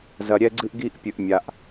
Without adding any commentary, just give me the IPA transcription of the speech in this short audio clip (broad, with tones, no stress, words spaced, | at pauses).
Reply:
zɐ˩ɾʲɛ˧ɡ͡ǀɨ˧ʔɡi˧ʔ pʲɨ˩ʔmʲa˩ʔ